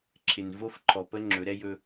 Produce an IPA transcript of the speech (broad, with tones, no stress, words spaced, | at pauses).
ǁʰɪ˨nvo˦fǃʰɔ˨pə˦ ŋ͡ǁɵ˨˦ɾɛ˦jɵ˦